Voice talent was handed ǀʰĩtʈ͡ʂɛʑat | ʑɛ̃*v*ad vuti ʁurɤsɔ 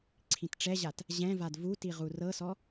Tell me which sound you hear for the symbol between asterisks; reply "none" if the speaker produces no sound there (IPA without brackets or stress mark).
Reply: v